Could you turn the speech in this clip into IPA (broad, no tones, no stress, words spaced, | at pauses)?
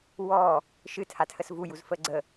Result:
wɔː | ʃɨtʰatʰəs vujuzfəː ɡ͡ǀə